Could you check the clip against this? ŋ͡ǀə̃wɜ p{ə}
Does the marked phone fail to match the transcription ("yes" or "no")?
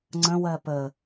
no